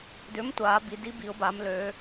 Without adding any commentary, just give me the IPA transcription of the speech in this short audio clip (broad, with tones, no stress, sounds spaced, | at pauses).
d ʏː˨˥ m tʷ aː˩˧ b i˩˧ d i˨˥ b i˩˧ ʊ̯ b a˩˧ m l øː˩˧